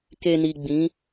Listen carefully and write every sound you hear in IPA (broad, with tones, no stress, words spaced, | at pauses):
ke˨ni˨ ɡ͡bĩ˨˦